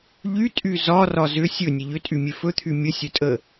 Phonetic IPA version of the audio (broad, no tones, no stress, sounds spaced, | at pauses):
ʎ y tʼ y z ɒ r ɒ z ʏ sʲ ɵ nʲ ə ʎ ʏ tʼ y mʲ e f ɵ t̪ʰ y mʲ ə sʲ ɵ tʼ ə